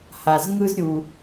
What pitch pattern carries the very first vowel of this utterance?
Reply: low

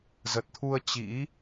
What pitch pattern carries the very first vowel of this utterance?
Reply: low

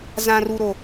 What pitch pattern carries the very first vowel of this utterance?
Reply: high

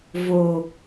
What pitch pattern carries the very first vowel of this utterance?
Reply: low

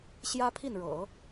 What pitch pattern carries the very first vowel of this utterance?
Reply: high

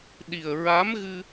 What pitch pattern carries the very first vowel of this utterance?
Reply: low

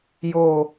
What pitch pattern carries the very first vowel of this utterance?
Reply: low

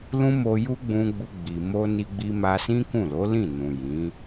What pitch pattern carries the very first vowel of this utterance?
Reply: high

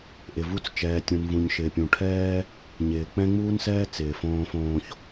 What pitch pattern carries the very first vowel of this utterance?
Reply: low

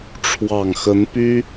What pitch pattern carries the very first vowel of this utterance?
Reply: low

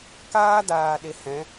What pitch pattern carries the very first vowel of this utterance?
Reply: high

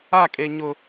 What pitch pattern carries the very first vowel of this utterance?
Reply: falling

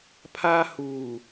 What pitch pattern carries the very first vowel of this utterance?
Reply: high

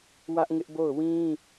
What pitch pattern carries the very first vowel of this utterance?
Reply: high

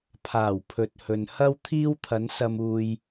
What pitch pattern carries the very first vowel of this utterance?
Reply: low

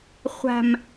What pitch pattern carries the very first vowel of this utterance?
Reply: low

